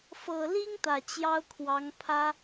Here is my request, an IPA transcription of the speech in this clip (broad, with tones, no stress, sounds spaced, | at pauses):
f ɤ˨˩ l i˥ ŋ t̪ ä˨˩ t͡ɕ j ɑ˥ ʊ̯ kʰ w ɑ˧˥ ŋ pʰ ä˥